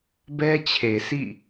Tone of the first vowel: high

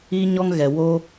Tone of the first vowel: high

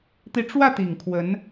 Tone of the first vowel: rising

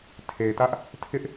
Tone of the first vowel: low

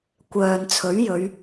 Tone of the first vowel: low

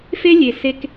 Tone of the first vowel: high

